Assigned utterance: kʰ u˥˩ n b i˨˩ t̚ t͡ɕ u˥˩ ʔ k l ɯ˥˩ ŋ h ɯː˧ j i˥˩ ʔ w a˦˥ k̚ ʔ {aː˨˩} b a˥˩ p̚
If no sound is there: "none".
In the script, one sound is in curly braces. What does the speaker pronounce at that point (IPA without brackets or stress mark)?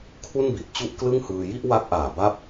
aː˨˩